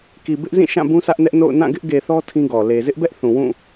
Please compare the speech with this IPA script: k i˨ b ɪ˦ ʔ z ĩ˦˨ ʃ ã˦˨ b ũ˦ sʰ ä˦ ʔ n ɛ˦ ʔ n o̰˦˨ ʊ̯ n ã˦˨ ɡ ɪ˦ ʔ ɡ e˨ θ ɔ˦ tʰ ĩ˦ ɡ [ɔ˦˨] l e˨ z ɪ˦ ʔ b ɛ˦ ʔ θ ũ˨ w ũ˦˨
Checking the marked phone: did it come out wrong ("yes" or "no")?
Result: yes